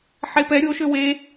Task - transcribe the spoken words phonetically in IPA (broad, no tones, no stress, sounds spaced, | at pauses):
ħ e p ɛ ɾʲ o ʃ ø w e